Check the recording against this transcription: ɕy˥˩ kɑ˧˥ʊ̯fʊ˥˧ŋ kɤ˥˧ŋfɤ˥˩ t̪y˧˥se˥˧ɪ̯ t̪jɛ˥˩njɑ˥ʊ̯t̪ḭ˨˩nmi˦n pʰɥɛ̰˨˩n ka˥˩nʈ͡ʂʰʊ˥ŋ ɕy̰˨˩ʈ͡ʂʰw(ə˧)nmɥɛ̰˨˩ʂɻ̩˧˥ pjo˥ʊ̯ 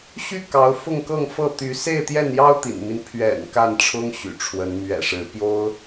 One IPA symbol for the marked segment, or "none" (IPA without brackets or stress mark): ə˧˥